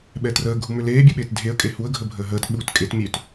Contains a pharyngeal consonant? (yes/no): no